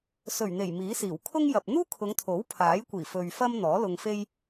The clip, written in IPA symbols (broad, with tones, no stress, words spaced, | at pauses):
sɵ˨˩ɥn̪e˨˩j miː˨˥siː˨˩w kʰʊ˥ŋjɐ˨p̚ n̪uː˥kʰʊ˨˧ŋt̪ʰo˨˥w pʰaː˨˥jkʷiː˨˩fɵ˨ɥ fɐ˥mn̪ɔː˨˥ lʊ˧ŋfe˥j